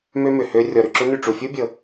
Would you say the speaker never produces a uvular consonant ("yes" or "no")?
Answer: yes